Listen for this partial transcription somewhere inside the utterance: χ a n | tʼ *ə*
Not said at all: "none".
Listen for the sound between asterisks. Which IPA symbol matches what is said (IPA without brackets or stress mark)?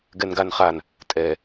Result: ɛ